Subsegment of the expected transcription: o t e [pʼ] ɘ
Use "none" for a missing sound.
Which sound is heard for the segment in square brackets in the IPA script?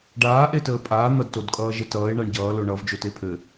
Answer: pʰ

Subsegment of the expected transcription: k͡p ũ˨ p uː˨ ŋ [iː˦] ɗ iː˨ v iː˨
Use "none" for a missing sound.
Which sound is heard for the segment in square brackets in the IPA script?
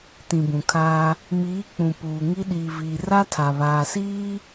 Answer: i˦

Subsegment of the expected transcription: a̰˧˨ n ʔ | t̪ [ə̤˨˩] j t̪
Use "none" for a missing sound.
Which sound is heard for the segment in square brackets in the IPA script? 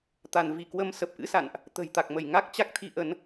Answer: ə̤˨˩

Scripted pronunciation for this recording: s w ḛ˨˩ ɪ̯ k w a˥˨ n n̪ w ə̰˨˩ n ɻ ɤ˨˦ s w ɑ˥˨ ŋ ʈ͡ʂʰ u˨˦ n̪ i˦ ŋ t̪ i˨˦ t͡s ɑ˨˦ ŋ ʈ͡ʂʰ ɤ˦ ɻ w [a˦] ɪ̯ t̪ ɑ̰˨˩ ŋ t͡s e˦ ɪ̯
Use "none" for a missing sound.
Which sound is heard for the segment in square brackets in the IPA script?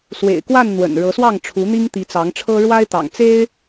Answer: a˦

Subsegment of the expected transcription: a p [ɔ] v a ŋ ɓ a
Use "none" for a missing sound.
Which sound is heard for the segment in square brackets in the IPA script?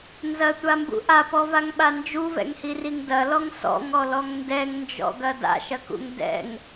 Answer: ɔ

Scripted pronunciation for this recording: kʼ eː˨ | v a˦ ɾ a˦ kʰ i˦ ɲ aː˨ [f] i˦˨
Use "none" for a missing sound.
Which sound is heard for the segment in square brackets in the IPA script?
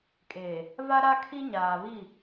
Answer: β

